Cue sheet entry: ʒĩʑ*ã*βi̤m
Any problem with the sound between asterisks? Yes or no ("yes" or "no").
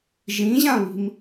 no